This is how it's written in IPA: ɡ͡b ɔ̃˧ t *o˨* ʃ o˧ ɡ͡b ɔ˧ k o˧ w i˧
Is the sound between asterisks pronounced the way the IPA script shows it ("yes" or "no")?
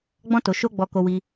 yes